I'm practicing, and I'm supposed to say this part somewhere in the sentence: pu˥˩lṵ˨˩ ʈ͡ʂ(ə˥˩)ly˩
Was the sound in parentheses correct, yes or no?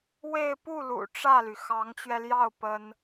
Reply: no